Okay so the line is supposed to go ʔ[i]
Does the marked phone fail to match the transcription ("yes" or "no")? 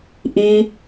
no